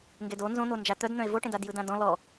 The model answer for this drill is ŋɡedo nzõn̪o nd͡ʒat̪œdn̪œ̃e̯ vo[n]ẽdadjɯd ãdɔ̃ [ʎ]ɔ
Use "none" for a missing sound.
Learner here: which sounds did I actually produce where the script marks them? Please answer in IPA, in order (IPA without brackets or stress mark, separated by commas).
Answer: ʈ, l